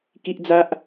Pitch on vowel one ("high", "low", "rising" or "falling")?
high